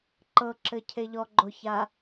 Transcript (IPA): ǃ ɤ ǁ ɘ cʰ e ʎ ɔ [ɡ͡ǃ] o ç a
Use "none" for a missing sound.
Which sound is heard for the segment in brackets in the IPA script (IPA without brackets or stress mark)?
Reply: ɡ͡ǃ